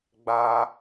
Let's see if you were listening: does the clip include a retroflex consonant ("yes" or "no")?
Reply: no